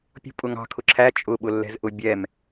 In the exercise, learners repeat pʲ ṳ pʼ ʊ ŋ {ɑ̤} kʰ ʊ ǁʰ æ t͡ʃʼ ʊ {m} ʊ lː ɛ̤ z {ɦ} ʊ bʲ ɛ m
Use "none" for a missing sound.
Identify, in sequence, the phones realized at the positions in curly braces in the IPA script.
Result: ɑ̤, ɓ, ʔ

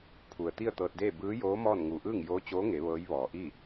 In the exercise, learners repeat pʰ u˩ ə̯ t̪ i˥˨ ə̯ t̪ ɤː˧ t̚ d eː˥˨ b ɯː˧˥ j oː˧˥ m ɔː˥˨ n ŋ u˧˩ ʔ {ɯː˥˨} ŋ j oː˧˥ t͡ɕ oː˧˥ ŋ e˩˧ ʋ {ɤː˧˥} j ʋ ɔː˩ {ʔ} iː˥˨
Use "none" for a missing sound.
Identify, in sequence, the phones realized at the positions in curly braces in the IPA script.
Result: ɯː˥˨, ɤː˧˥, ʔ

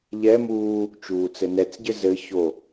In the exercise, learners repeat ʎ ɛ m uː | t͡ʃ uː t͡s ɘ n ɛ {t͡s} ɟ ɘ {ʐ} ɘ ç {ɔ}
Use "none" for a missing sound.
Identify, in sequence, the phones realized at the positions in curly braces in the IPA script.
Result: t͡s, z, o

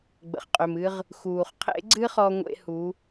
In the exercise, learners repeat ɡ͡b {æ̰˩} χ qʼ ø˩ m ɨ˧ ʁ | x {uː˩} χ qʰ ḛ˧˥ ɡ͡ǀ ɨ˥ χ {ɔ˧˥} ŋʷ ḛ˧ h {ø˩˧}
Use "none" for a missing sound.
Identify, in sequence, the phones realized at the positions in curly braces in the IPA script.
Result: ə̰˩, uː˩, ɔ˧, u˩˧

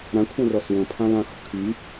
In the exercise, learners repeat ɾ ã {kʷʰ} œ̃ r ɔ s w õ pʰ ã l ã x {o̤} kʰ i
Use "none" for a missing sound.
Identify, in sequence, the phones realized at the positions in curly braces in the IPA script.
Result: kʷʰ, o̤

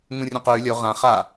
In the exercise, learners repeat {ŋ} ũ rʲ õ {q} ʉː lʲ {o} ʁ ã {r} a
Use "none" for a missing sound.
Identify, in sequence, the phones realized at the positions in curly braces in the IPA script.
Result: ŋ, q, o, χ

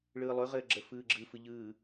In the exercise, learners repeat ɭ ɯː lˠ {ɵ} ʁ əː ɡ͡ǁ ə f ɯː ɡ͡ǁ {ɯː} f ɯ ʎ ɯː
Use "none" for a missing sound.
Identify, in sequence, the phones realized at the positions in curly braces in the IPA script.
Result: ɵ, ɯ

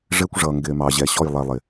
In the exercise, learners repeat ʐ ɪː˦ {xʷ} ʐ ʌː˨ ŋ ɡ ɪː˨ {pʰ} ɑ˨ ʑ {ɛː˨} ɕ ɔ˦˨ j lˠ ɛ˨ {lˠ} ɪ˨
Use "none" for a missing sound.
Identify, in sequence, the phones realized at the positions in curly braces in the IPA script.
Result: kʷ, m, ɛ˨, lˠ

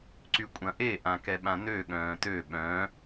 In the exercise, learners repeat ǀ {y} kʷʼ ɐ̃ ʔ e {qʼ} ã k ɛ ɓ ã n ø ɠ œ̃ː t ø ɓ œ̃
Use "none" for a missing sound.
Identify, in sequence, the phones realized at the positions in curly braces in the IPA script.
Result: y, ʔ

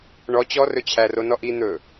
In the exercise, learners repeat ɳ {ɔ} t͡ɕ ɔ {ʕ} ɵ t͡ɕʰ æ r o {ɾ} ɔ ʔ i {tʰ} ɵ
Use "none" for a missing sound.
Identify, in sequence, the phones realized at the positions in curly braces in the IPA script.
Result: ɔ, r, n, n̪

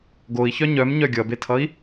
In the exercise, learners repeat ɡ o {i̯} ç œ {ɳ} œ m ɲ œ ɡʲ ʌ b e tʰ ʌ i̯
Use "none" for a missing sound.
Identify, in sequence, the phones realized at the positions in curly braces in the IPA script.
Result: i̯, ɲ

